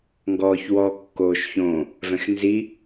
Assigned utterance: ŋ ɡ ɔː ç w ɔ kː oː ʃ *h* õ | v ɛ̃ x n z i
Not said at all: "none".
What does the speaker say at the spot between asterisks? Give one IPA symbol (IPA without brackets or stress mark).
ç